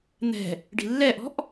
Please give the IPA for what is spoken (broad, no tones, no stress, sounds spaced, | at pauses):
n̪ ɛ̤ | ɖ i̤ lː ɛ ʔ ɔ̤ ʔ